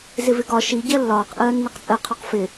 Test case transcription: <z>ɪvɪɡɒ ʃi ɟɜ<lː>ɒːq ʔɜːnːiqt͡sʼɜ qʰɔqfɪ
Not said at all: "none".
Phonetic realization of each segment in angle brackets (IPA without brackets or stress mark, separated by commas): z, lː